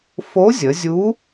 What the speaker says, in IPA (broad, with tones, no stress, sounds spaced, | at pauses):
f o˧˥ zʲ ə˩˧ zʲ u˧˥